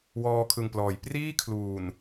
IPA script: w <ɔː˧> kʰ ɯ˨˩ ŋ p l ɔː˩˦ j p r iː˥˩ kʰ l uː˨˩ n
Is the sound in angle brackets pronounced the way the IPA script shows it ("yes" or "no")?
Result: yes